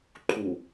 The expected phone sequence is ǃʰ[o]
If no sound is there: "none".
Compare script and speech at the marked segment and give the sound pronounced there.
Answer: u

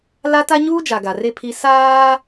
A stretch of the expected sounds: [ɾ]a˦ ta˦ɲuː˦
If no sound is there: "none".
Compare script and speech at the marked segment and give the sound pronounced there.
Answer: l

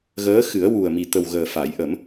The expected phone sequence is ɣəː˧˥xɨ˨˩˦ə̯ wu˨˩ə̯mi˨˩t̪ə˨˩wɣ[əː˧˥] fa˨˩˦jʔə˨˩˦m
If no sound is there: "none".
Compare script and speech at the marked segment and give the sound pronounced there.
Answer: əː˨˩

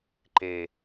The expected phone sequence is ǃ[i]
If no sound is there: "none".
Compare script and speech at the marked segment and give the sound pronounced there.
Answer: e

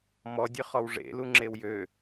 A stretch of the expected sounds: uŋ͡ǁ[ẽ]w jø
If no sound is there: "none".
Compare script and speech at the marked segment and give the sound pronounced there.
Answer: e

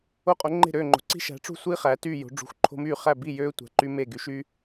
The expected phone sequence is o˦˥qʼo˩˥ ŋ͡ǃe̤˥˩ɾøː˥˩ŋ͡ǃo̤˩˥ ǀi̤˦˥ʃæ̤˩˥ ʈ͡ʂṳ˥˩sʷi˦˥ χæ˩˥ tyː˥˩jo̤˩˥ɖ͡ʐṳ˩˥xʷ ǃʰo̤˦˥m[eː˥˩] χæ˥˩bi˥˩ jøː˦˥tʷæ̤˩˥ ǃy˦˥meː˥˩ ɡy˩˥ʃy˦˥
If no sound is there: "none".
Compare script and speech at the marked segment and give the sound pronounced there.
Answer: yː˥˩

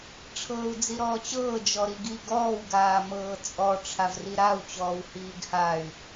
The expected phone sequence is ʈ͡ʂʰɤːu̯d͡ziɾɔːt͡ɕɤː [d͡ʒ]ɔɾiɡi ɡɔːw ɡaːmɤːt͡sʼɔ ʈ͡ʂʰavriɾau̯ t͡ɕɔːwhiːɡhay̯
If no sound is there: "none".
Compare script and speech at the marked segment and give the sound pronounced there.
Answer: d͡ʒ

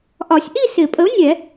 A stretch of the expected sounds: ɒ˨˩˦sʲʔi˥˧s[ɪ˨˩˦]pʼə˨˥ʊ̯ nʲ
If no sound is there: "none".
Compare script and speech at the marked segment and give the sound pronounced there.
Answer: ɪ˨˩˦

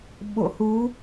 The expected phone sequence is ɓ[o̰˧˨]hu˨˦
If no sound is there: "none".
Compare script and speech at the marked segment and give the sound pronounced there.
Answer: o̰˧˨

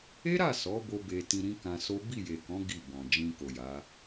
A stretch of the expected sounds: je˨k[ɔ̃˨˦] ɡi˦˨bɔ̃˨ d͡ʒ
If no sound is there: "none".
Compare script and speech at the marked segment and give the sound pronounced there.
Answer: ɔ̃˨˦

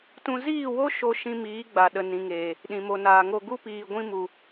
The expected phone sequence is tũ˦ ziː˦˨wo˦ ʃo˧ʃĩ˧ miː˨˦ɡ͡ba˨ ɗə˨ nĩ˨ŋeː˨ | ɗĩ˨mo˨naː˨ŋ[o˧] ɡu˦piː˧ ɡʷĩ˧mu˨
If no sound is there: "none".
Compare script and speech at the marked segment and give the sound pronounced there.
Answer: o˧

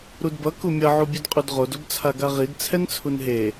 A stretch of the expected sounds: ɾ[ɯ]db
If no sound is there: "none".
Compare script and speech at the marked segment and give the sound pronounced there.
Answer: u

